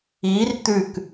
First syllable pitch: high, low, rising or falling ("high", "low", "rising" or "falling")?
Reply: rising